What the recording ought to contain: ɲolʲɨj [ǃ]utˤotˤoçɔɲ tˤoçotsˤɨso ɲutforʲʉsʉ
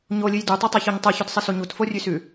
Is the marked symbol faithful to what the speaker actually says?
no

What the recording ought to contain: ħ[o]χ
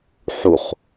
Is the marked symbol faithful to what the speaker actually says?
no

